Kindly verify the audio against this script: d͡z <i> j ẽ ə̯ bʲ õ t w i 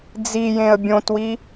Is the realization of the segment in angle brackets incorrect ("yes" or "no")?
no